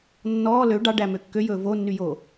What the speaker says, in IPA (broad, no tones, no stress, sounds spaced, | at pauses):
nː ɔː l ø ɖ ɑ ɖ æ m ø kː ø j ɵː v o nː y j oː